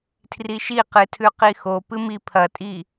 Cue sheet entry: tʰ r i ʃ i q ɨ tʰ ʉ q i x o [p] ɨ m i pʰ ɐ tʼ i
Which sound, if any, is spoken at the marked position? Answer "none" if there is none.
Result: p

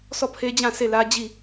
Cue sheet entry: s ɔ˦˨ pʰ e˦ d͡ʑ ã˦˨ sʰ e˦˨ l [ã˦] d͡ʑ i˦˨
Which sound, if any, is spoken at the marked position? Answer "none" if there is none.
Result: ä˦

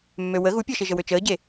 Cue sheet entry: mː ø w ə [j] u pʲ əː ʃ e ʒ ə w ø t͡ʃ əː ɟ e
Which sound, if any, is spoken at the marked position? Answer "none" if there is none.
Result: ɣ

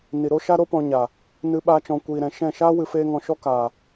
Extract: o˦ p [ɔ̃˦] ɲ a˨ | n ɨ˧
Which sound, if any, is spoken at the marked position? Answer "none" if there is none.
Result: ɔ̃˧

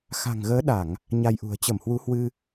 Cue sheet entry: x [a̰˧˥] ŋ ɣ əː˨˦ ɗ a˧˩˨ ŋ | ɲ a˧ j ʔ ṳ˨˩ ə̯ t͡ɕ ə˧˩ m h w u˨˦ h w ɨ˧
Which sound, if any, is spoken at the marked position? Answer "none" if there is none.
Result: a̤˨˩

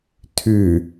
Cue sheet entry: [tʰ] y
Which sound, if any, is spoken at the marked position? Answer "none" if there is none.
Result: tʰ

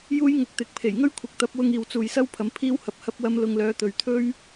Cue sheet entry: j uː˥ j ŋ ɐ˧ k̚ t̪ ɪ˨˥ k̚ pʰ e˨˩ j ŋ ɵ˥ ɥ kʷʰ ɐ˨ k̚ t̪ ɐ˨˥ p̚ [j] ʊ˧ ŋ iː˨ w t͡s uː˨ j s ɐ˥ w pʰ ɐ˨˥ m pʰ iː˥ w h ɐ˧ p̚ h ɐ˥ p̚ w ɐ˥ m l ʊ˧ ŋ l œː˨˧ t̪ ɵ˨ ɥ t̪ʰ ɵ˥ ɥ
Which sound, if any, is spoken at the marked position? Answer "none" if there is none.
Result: w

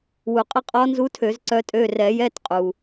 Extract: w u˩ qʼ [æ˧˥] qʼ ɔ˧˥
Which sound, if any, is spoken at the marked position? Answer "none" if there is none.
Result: ə˧˥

